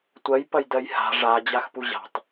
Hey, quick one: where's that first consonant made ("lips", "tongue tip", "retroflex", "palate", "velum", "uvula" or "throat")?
tongue tip